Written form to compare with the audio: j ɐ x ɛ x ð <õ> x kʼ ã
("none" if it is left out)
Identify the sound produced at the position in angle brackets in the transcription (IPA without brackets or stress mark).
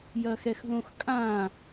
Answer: õ